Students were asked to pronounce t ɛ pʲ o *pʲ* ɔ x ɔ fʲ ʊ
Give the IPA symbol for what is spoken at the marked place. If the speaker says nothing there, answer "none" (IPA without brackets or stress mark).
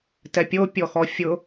pʲ